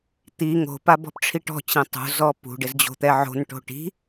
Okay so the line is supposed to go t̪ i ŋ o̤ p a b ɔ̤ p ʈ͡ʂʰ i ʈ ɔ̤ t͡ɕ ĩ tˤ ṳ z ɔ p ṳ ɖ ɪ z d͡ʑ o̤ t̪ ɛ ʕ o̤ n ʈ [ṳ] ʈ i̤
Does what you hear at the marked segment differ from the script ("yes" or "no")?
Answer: yes